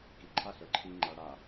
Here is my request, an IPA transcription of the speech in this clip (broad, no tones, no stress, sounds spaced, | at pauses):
k i ǃʰ a ɬ ə˞ ǃʰ i ŋ͡ǃ a ɽ a